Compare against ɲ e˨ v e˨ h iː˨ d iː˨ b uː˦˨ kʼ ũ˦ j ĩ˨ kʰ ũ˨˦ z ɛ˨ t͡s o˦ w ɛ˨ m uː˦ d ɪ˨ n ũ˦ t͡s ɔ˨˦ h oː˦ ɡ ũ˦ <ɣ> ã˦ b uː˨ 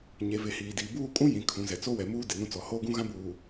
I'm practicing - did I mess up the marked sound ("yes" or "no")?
no